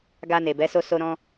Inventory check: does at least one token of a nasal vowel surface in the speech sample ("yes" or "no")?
yes